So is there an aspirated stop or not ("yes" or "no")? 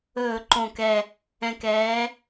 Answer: no